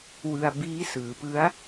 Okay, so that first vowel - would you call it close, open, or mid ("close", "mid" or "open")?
close